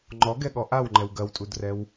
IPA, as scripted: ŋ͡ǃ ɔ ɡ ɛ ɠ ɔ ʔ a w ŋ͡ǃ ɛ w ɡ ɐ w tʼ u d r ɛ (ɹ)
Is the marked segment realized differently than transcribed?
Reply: yes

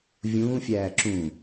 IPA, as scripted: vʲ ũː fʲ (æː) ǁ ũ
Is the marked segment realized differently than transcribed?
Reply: no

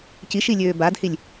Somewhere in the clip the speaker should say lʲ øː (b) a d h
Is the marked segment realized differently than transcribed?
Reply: no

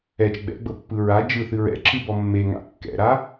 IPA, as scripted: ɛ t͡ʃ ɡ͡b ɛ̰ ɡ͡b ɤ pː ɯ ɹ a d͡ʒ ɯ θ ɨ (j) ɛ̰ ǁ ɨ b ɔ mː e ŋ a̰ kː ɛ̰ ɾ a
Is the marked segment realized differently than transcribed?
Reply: yes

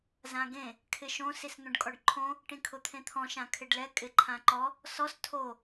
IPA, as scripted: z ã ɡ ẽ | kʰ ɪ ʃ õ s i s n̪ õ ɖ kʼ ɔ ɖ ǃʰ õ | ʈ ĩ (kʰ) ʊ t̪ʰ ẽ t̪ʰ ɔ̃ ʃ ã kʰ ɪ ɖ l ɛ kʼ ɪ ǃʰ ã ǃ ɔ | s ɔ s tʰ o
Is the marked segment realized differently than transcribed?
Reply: no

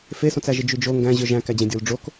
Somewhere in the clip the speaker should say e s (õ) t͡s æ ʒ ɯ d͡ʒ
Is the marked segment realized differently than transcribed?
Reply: no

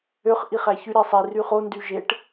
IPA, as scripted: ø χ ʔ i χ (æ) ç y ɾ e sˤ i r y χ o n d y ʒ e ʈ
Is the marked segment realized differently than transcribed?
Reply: no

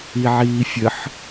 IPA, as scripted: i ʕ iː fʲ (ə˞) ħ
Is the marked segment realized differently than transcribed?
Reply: yes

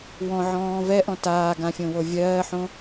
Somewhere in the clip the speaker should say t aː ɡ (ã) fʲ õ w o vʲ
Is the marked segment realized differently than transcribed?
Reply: no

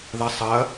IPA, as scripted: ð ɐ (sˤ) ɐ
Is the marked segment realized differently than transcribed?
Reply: no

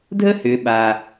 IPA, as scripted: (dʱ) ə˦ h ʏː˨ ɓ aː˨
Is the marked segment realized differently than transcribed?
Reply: no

